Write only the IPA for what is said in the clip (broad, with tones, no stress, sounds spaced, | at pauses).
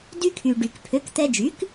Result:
d y˧ kʰ y˩ ɖ y˩ k pʰ ø˩˥ k t̪ ɛ˧ d͡ʒ y˩˥ k